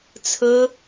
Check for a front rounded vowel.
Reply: absent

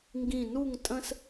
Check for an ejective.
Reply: present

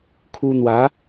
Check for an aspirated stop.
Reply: present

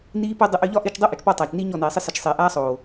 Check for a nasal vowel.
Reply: absent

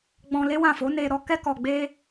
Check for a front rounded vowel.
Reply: absent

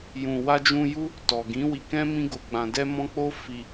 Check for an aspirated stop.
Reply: absent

